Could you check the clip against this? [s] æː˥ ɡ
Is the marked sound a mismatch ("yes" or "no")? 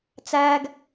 yes